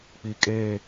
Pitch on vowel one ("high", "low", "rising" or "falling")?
low